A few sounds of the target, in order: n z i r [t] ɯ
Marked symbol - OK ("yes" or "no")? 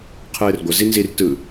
yes